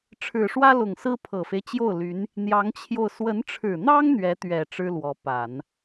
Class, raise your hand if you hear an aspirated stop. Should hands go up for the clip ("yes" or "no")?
yes